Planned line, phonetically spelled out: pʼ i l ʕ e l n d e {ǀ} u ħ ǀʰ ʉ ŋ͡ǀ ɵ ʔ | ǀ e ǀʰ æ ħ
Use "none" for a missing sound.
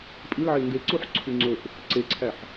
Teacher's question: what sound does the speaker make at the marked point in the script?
ǀ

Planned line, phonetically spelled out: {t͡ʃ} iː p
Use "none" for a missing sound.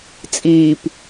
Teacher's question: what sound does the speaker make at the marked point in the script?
t͡sʼ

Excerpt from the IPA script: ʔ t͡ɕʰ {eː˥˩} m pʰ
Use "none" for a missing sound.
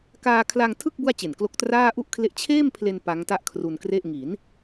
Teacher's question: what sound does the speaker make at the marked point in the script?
eː˥˩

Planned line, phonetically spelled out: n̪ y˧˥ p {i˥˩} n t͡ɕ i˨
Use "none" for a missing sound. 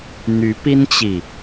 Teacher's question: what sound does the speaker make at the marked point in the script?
i˥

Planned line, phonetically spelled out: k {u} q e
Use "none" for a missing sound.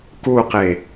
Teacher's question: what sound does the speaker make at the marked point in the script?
u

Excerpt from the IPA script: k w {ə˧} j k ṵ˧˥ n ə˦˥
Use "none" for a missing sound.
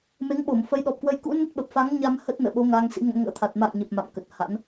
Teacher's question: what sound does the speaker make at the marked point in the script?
ə˧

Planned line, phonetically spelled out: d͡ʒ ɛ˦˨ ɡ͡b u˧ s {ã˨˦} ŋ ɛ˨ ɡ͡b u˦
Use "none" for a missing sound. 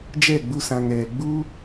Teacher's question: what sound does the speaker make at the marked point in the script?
ã˨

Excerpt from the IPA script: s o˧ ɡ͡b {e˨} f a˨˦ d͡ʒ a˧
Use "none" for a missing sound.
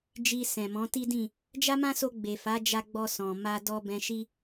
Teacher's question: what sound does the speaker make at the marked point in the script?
e˨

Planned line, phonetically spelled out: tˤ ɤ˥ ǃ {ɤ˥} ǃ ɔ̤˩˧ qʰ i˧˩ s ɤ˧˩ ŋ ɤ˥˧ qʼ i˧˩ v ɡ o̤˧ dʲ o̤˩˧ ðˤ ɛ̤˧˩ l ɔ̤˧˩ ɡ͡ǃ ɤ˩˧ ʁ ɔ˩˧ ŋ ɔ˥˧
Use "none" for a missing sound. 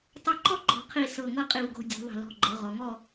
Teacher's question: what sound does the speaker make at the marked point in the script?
ɔ˥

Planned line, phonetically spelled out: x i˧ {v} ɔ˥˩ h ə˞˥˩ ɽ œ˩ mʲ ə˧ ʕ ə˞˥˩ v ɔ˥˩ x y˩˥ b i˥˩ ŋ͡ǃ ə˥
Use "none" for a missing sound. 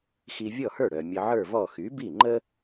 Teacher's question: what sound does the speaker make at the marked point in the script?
vʲ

